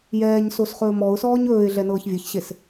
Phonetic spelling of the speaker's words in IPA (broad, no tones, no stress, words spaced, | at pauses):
jɛːɲ sosχɵːmɔʊ̯sɔːɲ ɵːɪ̯ ɮɛnɤːçvʲɤçɕes